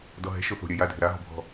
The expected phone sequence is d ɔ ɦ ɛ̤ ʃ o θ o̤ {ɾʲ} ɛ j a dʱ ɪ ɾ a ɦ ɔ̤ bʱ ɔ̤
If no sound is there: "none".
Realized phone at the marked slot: ɾʲ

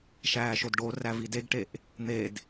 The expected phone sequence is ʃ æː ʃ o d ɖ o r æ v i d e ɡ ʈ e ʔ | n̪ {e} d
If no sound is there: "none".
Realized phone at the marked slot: e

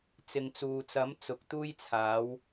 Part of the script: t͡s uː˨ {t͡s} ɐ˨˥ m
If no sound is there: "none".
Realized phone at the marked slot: t͡s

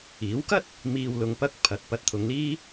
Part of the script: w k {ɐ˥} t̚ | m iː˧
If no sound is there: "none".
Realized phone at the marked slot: ɐ˥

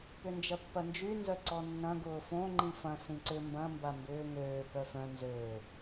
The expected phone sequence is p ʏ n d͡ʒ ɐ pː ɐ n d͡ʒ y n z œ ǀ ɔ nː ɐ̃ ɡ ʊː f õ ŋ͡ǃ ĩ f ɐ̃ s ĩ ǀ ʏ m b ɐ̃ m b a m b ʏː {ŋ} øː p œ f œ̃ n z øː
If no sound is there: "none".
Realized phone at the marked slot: ŋ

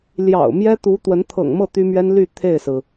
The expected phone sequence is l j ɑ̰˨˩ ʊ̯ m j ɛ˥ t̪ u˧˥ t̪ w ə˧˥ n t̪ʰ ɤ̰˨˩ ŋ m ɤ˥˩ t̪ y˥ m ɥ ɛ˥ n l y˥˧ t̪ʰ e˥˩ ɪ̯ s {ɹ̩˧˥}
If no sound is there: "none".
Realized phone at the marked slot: ɹ̩˩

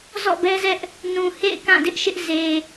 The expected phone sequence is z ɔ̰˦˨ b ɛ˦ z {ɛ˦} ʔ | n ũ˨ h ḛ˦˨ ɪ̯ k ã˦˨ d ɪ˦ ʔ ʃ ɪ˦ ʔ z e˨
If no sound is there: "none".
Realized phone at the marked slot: ɛ˦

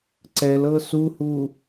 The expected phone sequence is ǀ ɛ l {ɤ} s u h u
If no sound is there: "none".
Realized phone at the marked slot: ɤ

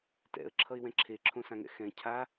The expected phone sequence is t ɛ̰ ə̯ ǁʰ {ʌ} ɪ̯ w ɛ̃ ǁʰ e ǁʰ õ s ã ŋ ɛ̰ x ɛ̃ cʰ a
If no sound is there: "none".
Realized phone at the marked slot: ʌ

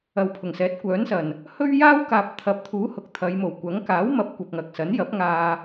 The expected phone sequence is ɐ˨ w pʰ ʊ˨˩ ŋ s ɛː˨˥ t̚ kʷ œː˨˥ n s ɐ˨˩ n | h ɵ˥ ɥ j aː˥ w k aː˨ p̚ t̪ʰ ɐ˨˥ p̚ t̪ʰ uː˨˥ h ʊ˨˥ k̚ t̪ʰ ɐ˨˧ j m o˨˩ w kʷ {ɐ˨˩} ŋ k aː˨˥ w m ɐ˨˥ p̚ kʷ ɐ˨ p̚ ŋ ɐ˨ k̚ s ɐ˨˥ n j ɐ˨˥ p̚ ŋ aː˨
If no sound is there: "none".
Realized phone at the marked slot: ɐ˨˥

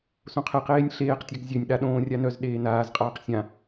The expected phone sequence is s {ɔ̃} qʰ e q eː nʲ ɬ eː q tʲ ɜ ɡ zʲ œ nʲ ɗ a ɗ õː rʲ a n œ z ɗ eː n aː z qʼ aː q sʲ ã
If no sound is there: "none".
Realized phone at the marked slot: õ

